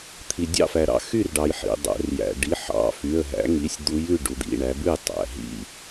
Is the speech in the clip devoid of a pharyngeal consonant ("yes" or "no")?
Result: no